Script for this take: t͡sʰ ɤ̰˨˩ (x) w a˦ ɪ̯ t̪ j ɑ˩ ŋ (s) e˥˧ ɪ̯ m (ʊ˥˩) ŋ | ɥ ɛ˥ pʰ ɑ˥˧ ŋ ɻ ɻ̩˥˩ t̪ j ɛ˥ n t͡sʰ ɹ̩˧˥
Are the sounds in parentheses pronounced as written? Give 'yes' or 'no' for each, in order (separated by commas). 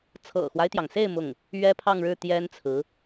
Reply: yes, yes, yes